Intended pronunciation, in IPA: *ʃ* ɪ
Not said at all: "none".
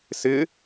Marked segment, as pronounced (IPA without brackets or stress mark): s